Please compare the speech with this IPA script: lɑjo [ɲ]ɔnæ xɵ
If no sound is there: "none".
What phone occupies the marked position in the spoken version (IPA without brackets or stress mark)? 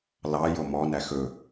m